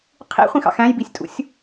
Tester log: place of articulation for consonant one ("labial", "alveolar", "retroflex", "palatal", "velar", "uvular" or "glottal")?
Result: uvular